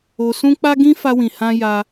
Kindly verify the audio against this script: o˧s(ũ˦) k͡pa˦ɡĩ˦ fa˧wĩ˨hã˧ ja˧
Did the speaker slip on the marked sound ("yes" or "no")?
no